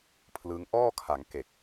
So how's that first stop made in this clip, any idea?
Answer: aspirated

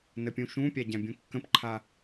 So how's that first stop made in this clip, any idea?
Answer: plain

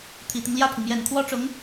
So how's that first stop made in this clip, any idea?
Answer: aspirated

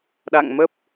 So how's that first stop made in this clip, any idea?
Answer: implosive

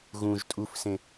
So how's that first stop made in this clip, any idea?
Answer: ejective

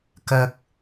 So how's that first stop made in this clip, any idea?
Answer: plain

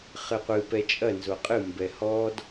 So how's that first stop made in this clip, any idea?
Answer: plain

